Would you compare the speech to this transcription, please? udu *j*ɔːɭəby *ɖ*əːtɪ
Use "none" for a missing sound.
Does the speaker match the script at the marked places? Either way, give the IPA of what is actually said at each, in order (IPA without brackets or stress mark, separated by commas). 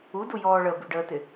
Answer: j, ɖ